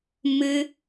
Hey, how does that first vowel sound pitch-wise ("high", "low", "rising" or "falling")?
high